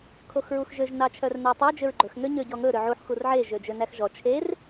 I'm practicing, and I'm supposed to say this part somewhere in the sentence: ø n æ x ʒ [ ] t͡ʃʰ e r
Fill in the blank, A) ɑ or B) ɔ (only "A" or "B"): B